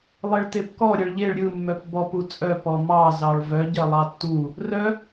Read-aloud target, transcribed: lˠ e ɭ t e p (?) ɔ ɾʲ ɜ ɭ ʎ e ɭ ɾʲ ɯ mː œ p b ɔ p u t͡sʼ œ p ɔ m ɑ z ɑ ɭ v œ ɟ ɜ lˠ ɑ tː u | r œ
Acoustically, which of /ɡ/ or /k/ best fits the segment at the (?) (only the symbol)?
k